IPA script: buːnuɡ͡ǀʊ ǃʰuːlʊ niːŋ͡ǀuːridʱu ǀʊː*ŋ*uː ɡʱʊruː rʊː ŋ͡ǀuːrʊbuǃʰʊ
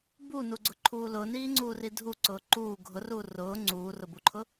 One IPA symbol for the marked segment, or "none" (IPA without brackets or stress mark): ǃ